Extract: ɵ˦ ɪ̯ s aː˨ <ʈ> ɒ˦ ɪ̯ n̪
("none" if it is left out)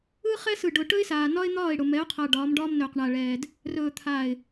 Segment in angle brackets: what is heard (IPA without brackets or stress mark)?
n